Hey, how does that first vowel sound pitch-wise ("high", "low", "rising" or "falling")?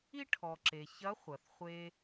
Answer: high